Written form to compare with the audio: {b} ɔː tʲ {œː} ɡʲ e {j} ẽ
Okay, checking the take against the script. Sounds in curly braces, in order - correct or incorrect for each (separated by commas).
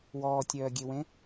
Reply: incorrect, correct, incorrect